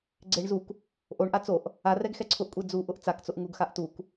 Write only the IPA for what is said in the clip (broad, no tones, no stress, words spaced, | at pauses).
ɡ͡ǀeɳ zuk | ʔoɳʔa t͡soʔ | a rɛɡxɛǀʰʊʔkʷʼe d͡zuʔʊʔ t͡sakt͡sʊʔ ŋuɡxaʔ tuk